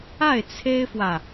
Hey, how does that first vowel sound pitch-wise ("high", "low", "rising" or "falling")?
falling